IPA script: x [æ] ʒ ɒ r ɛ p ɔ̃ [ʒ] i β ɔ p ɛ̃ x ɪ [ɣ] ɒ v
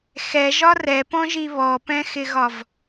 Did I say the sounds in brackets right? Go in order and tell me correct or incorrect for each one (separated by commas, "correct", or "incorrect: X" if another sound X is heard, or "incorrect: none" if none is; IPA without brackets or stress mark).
incorrect: ɛ, correct, correct